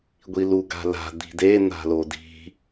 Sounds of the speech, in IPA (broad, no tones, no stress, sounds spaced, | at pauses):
ɡʷ i l u ɡ a̤ l a̤ d̪ i̤ d e n̪ a̤ l o d i̤